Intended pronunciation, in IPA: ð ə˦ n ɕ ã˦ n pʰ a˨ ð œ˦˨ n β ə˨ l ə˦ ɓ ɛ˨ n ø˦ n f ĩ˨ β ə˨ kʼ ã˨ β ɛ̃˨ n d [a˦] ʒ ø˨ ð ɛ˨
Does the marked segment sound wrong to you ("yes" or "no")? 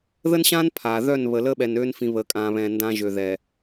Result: yes